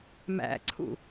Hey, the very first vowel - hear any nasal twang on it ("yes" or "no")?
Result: no